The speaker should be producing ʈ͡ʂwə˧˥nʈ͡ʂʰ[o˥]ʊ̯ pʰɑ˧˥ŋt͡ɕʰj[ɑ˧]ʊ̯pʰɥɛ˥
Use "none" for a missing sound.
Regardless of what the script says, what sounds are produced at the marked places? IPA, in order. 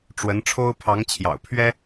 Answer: o˥, ɑ̰˨˩

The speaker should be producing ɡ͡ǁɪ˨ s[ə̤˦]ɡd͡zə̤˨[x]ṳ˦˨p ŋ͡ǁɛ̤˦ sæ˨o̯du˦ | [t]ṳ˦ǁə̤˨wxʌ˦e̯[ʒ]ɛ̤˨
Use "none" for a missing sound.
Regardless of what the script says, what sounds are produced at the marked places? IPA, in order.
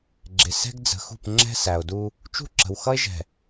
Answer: ɛ̤˦, x, t͡ʃ, ʒ

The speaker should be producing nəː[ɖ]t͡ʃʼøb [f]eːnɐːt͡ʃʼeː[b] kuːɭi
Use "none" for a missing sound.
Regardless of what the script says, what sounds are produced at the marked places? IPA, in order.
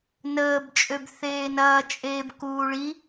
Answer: b, θ, b

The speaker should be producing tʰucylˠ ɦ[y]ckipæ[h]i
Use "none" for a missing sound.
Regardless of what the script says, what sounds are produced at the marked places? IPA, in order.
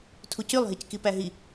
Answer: i, ɦ

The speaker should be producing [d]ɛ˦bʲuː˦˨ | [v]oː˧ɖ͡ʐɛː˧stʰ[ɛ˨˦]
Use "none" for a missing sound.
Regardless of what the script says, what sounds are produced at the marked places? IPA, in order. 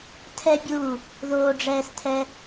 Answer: tʰ, ð, ɛ˧

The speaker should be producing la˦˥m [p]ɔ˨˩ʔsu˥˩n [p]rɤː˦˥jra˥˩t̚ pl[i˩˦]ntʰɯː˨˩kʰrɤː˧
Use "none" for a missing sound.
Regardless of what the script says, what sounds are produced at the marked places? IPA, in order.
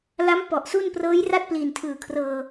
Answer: p, p, i˨˩

